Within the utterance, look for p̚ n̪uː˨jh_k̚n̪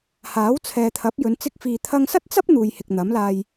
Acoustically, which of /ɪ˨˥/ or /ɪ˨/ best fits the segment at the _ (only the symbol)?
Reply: ɪ˨